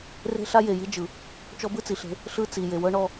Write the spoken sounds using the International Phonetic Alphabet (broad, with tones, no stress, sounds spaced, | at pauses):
r e̤˦ ɬ a˦ j e˨ j i˦ d͡ʒ ɯ˨ | t͡ʃ ɔ˦ b ɯ˦ t͡s i˨ ɬ e̤˦ | ɬ ɯ˦ t͡s i˨ j e˨ w ɤ˦ ɳ ɔ˦